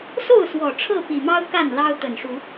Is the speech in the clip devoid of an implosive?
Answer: yes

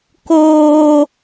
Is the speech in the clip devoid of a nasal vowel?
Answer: yes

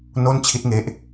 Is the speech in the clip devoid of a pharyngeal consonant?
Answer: yes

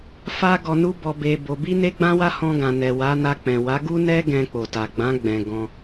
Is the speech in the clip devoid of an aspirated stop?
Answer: yes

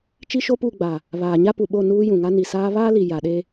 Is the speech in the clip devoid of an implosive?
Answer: no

